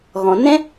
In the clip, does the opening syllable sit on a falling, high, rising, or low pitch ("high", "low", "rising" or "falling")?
low